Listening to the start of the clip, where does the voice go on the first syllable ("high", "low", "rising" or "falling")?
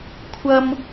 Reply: low